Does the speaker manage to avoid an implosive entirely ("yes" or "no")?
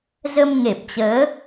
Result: yes